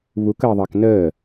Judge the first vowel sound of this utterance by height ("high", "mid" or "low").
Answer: high